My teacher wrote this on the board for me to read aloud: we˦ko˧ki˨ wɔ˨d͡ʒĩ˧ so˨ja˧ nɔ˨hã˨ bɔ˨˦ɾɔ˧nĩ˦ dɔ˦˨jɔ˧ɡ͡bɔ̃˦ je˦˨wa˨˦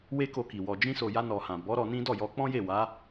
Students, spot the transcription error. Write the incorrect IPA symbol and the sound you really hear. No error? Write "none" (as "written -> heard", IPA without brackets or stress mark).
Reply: ɡ͡b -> k͡p